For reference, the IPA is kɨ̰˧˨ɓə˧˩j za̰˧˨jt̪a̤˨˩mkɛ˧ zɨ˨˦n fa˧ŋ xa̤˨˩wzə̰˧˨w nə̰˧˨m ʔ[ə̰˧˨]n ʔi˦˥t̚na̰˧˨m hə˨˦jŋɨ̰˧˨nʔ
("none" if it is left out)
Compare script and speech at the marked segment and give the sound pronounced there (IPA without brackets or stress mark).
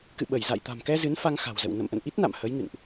ə̰˧˨